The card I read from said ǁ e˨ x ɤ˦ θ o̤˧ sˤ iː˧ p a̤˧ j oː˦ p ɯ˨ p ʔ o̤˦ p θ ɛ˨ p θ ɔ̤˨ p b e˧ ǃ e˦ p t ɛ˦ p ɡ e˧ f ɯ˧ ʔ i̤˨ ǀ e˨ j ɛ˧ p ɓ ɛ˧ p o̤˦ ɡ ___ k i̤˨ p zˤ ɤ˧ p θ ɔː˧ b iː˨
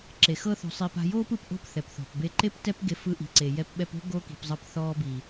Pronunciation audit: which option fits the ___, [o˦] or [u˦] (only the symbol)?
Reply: o˦